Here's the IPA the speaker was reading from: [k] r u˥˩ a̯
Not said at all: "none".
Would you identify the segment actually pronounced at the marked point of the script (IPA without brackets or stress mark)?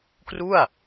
k